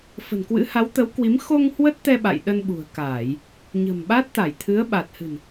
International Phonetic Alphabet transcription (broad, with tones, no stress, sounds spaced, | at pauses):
f ə̤˨˩ n k w ɨ̰˧˥ h a˨˦ w t̪ ə˨˦ w k w i˨˦ m x o˧ ŋ h w ə˦˥ t̚ t̪ ɛ˧ ɓ a̰˧˨ j ɗ ə˧ n ɓ ṳ˨˩ ə̯ k aː˧˩˨ j | ɲ ə̤˨˩ m ɓ a˦˥ t̚ t̪ a˧˩ j t̪ʰ ɨ˨˦ ə̯ ɓ a˨˩ t̚ h ɨ̤˨˩ n